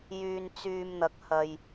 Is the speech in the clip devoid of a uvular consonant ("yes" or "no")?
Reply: yes